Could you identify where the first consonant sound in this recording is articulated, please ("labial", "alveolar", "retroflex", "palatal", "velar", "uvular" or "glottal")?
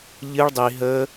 palatal